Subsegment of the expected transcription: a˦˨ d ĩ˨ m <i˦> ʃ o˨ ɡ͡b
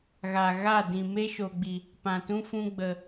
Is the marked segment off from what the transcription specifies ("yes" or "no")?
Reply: yes